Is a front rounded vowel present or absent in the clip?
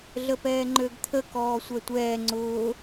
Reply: present